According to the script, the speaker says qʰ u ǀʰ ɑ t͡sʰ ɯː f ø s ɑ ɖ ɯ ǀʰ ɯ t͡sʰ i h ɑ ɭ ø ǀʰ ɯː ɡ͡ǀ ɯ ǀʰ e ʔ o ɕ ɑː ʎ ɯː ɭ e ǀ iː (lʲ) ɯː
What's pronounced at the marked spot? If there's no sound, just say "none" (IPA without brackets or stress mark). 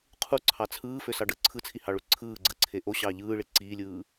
lʲ